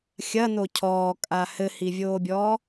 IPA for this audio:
xʲɐ nocʰɔːkʼa hɘhivʲoːbʲɔː

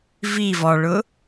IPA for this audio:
vi vɔɭʊ

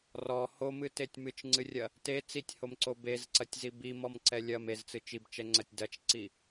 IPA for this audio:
rɔ homɨtetʲ mɨt͡ʃŋ͡ǀɨrʲɐ | te t͡sitʲhomǀo bezǀɐtʲzi bimɔmǀɛ lʲɐm ezt͡sɨ t͡ʃibt͡ʃɛŋ͡ǀɐtʲ dɐt͡ʃǀi

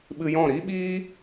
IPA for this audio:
ɓɨ˧jɔ̃˦˨ ɾi˦ɓiː˦

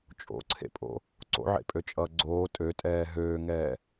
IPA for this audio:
t͡ʃʼo̰ǀʰḛpʼo̰ | ǀo̰ʕḛpʼøt͡ʃʼʌː ɡ͡ǀoː tʼøtʼɛː ɦøːŋɛː

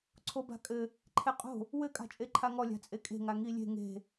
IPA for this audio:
ǀʰoba̤kʼɘ | ǃʰeqʼo̤ | wɘ kʼa̤t͡ʃʼeǃʰaŋɔ lʲa̤t͡sʼekʼe̤ ŋaŋilʲe̤ ŋe̤

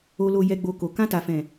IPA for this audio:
o˨lo˨ jɛ˨ɡ͡bo˨ ko˨ kã˧ta˨fɛ̃˨

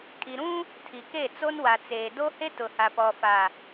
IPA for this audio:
kʼi˨ɾũ˦ | tʰi˨ ke˦˨t͡so˦n wa˨t͡seː˨ do˦he˦ tʊ˨ha˨pɔ˨fa˨

